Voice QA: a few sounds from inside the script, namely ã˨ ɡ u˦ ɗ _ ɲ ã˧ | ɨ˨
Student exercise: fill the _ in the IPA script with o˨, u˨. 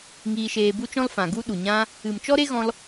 u˨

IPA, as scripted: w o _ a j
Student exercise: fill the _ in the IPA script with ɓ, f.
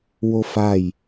f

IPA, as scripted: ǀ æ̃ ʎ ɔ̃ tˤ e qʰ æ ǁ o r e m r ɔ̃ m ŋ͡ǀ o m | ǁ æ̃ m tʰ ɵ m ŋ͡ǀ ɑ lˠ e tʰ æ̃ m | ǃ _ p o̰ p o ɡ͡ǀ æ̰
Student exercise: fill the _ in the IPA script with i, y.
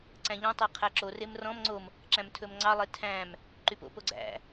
y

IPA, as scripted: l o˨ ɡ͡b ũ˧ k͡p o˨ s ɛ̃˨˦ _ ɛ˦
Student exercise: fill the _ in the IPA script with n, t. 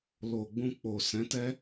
t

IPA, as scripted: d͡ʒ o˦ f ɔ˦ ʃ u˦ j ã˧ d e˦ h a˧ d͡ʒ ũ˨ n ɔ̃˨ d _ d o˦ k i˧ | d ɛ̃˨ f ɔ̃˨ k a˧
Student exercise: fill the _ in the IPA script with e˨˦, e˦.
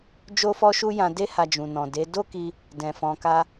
e˨˦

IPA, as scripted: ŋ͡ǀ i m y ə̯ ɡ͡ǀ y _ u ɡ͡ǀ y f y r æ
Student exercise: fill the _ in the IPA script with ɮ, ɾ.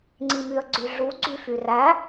ɮ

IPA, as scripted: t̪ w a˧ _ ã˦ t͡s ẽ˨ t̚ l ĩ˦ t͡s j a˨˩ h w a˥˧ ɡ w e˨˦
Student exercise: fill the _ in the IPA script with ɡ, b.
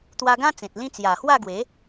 ɡ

